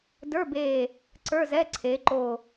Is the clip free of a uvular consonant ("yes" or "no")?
yes